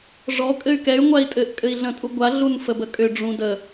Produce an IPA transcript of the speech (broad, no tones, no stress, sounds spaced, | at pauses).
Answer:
ʐ ɔ kʼ ɘ y̯ k ɛ y̯ ŋʷ a i̯ tʼ ɘ ʔ kʼ ɘ i̯ ɮ ə̃ tʼ u ɡʷ a ɮ u n f ə b ə kʼ ʏ ɖ͡ʐ ũ d ə